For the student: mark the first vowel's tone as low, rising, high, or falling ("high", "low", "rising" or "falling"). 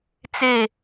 falling